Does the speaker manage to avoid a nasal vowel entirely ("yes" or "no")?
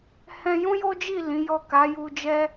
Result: no